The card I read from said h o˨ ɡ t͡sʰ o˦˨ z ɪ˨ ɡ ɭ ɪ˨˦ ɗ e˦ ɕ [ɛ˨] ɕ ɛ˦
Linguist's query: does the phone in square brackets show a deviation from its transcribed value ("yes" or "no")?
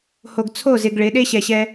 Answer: no